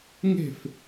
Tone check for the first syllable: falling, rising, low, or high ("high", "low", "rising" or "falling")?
falling